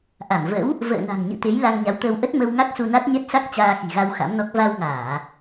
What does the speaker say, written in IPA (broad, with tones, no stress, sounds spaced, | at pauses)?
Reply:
ʔ a˧˩ m v ə̰˧˥ w | v ə̰ː˧˨ n a̤˨˩ ŋ ɲ ɨ̰˧˨ t̪ e˨˦ j l a˧ ŋ ɲ a˨˦ w t̪ əː˧ w ʔ ə˦˥ t̚ m ə˧ w ŋ a˦˥ k̚ s u˧ n a˦˥ t̚ ɲ ɛ˦˥ t̚ s a˦˥ k̚ t͡ɕ aː˧ x i̤˨˩ ɣ a˧ w x a̰˧˥ m n ɔ˦˥ k̚ v a˧ w ŋ aː˧˩˨